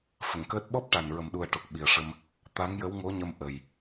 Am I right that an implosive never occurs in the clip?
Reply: no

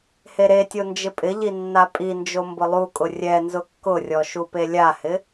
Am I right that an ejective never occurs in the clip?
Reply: no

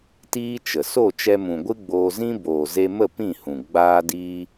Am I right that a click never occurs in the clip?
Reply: yes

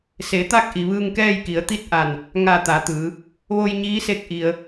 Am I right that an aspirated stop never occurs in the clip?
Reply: yes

